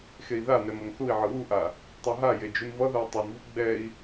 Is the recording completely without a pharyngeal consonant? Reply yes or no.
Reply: no